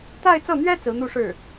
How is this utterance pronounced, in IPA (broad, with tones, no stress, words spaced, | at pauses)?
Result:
t̪a˥˧ɪ̯t͡sɤ˥˩n̪ɥɛ˥ t͡sɹ̩˧˥n̪u˥˧ʂɻ̩˥˩